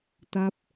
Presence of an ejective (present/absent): absent